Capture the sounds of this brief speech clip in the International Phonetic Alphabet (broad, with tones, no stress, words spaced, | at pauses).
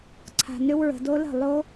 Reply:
ǀʰa̤˨nʏ˦˥wɹə̤˨do˦˥ lə̤˥˩ lˠo˦˥